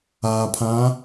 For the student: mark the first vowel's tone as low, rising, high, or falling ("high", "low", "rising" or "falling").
low